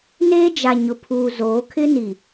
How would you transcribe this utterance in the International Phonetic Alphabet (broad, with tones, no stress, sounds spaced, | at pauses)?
n eː˦ d͡ʒ a˨ ɲ ʊ˨ pʰ uː˨ z oː˨˦ kʰ ɪ˦ n i˨